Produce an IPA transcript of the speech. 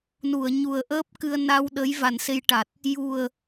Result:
n u˨˩˨ ə̯ ɲ u˨˩ ə̯ ʔ əː˦˥ p̚ k ɨ˧ ə̯ n a˧ w ɗ ə˧˥ j v a˨˩ n s e˧ j ʈ a˨˩ t̚ | j u˨˩ ə̯

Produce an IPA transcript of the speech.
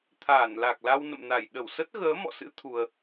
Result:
t̪ʰ aː˧˩ n l a˨˩ k̚ l a˧ w n ə̰˧˨ m n a˧˩ j ɗ ə˧˩ w s ə˦˥ t̚ ɣ əː˨˦ m ɔ̰˧˨ s ɨ̰˧˥ t̪ʰ u˧ ə̯

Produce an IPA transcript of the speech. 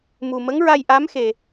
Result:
m u˨˩ m ə˧˥ ŋ ɹ a˧ j ʔ a˧˥ m x e˨˩

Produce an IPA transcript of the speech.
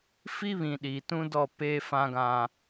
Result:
f i˦ β ĩ˨ ɗ iː˨ t ũ˦ d ɔ˦˨ p eː˦ f ã˦ ɡ ã˦

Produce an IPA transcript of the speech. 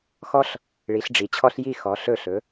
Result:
x ɔ˦ ɬ | ɭ i˩˥ ɬ ɖ͡ʐ i˩˧ t͡ɕʰ ɔ˦ ɬ j i˧˩ x ɔ˩˧ ɬ ɵ˧˩ ɬ ɵ˩˧

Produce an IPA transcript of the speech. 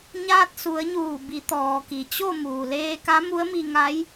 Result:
ɲ aː˧ t̚ s u˩˧ ə̯ ɲ uː˧˩ b i˩˧ t̪ ɔː˩ k i˩ t͡ɕ o˥˨ m uː˩ l eː˧ k a˧˥ m u˧˥ ə̯ m i˧ ŋ a˧˥ j

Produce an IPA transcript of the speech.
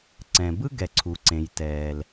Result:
ǀ ɛ̃˩ b ɯ˥ ɡ ɛ˩ ǀʰ u˩ ǀ ẽ˩ j t ɛː˩ l

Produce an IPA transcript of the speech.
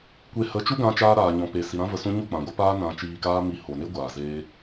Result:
kʷ e˦ h ə˨˦ t͡ʃ u˦ ɡ ã˧ t͡ʃ aː˧ ɾ aː˨ ɲ ɔ̃˨ p e˨ s i˨ ɾ ã˦ v ə˧ s ũ˦ ɲ u˦˨ k͡p ã˨ ɡʷ ə˨˦ p aː˦ n ã˧ t͡ʃ iː˧ k aː˦ m i˧ h o˨ n e˦ ɡʷ aː˨ z eː˦

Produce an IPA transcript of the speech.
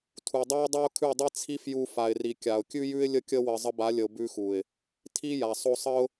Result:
tʰ u˨ dˤ a˦ ʊ̯ dˤ a˦ ʊ̯ kʰ ʉ˦˨ dˤ i˦ t͡sʰ i˦ f j u˧ f a˨ ɪ̯ r i˨ kʲ a˨ ʊ̯ kʲ ʉ˦ j ʉ˦ ɪ̯ lʲ ə˦ kʲ ə˦ w ə˧ zˤ ə˧ b a˨˦ lʲ ə˨ ʊ̯ b ʉ˧ x u˨ ɪ̯ | tʰ i˦ j a˨ sˤ o˧ sˤ ə˦ ʊ̯

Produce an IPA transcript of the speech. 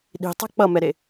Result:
ɗ i̤ tˤ ɛ̤ k͡p ʌ m ɛ ɾ e

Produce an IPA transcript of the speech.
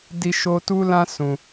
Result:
d i˦ ʃ o˦ t u˦ l ã˦ s ũ˧

